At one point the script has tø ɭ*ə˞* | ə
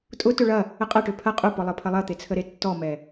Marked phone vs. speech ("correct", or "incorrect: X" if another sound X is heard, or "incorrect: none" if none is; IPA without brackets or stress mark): incorrect: ɐ